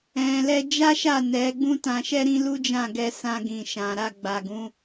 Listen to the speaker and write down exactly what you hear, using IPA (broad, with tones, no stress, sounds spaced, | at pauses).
ɛ̃˨ l ɛ˧ d͡ʒ a˦ ʃ a˦˨ n ɛ˨˦ ɡ͡b ũ˦ t ã˧ ʃ ɛ˦ ɾ ĩ˦ l u˦ d͡ʒ ã˦˨ ɡ ɛ˧ s ã˧ ɡ ĩ˨ ʃ ã˨ ɾ a˧ ɡ͡b a˨ ɡ ũ˨˦